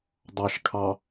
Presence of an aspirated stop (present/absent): present